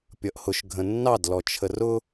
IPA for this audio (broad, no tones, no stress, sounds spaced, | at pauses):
pʲ ʌ ʔ h ʊ ʃ ɡʱ ə̃ nː ɑ d l ɔ t͡ʃʰ ə r ʊ